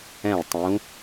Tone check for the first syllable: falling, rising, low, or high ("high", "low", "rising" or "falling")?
falling